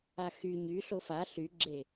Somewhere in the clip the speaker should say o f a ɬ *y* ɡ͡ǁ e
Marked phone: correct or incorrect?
correct